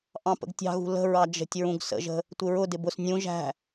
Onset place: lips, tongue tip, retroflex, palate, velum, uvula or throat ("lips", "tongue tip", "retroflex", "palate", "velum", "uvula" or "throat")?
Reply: throat